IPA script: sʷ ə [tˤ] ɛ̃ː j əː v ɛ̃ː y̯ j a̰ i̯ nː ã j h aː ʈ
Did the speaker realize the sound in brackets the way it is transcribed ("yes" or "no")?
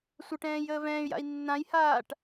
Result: no